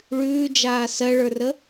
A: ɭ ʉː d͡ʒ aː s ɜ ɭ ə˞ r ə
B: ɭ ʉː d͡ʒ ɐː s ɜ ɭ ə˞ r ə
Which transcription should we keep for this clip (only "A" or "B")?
A